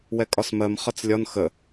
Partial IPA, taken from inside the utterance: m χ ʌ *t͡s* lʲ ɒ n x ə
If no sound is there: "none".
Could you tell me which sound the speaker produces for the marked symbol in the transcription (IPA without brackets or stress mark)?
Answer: t͡s